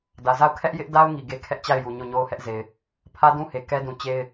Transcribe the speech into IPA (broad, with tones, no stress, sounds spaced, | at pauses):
d ä˨ z a˦˨ ʊ̯ kʰ ɛ˦ ʔ j ɪ˦ ʔ d a˦ ʊ̯ ŋ i˨ ɡ e˦ kʰ ɛ˦ ʔ t͡ɕ a˦˨ ɪ̯ j u˨ ɲ o˦˨ ɲ o˦ ʊ̯ h ɛ˦ ʔ z e˨ ɪ̯ | pʰ ä˦ d ũ˦ h e˨ k ɛ˦ d ũ˨ t͡ɕ e˦ ɪ̯